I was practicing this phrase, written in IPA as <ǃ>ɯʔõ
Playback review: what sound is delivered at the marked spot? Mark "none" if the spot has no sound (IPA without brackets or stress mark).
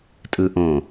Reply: tʼ